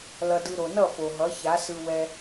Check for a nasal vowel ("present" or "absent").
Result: absent